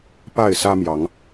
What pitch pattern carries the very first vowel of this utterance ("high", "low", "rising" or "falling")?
falling